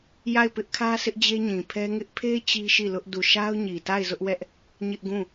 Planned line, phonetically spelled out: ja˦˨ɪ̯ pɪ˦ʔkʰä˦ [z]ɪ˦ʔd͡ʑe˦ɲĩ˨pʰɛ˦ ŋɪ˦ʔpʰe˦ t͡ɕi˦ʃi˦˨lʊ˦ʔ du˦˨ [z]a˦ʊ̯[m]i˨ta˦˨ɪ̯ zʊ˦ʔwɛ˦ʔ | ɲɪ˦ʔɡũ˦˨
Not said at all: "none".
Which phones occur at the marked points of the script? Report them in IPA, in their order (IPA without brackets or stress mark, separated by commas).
s, ʃ, ɲ